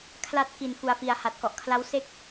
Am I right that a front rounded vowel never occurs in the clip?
yes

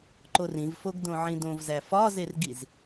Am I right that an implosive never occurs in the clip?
yes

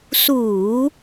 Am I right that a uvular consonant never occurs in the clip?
yes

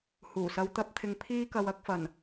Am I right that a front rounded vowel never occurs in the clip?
yes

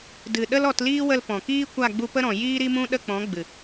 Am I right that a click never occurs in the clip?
yes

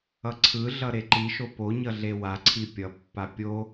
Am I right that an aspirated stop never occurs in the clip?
no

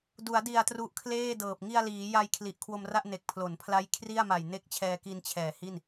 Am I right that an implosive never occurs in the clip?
yes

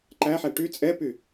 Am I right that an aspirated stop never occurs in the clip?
yes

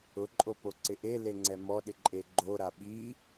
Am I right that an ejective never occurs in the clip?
no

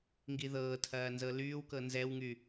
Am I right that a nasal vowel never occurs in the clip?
yes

